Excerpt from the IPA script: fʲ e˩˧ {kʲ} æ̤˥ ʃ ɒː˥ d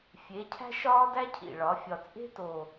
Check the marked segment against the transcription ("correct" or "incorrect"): incorrect